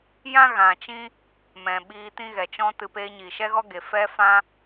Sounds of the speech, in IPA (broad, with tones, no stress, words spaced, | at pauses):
jã˦ɣã˨t͡ʃĩ˦ | mɛ̃˨ ɓiː˧tĩ˦ɣɛ˨ t͡ʃɔ̃˦tɨ˧ peː˧ɲiː˨ʃɛ˦ɣɔ˦ ɡe˨fɛ˦ fã˦